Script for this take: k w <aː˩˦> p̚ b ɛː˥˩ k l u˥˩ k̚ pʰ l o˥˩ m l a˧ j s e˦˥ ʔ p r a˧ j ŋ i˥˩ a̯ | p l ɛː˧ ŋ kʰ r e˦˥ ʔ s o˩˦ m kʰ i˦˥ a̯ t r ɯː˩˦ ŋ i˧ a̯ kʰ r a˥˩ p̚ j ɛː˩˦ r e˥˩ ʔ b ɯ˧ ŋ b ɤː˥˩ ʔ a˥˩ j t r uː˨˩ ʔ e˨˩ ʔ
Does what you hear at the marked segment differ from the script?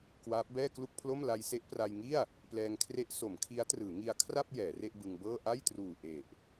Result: yes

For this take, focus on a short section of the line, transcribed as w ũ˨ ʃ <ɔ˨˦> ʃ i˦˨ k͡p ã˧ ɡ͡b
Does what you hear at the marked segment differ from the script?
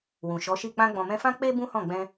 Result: no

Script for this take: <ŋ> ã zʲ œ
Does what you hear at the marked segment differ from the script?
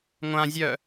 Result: yes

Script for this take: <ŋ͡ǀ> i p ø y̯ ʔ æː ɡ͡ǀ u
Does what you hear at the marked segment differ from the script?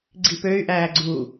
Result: yes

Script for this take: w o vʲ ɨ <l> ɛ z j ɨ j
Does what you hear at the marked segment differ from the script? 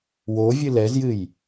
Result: no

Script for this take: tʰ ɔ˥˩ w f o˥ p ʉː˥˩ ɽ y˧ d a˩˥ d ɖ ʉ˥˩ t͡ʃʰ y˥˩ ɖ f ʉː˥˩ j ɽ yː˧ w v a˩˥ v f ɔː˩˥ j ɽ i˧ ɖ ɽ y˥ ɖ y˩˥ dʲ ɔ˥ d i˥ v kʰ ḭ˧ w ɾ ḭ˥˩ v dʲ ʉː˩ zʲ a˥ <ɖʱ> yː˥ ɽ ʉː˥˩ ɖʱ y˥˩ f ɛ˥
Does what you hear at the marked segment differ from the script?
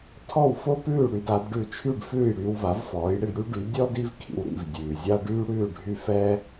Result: yes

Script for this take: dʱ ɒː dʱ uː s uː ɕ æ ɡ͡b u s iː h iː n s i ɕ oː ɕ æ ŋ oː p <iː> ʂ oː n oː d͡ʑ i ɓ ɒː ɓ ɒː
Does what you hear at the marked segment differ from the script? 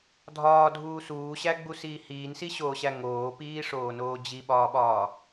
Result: no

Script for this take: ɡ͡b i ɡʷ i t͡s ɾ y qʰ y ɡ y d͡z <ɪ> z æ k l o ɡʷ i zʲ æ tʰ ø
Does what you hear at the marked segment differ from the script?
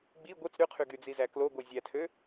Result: yes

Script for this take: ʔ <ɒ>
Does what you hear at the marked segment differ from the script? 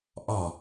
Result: no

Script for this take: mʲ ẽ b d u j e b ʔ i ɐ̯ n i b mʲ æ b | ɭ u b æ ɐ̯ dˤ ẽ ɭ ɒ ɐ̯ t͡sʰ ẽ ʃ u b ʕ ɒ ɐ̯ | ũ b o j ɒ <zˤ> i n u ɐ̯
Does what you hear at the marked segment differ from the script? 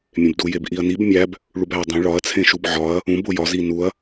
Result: yes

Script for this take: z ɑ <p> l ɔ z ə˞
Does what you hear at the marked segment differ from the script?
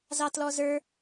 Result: yes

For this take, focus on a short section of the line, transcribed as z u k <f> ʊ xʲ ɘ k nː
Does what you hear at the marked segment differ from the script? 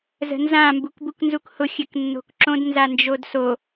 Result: yes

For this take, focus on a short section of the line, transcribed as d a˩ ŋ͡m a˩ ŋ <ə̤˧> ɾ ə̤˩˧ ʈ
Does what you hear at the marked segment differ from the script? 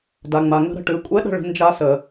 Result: no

